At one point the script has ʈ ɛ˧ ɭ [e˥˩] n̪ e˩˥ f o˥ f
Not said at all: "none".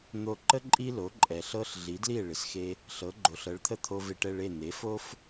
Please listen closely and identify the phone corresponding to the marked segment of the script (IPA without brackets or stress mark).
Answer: e˥˩